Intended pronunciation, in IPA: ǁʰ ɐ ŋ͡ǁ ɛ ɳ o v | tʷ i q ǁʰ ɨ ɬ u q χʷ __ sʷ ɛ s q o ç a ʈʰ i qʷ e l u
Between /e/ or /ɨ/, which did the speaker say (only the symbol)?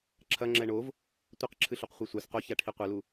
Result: e